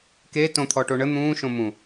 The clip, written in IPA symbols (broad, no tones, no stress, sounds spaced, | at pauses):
k e t õ t̪ʰ ɔ ʈ o ɳ ə n̪ ũː ʃ õ m ũ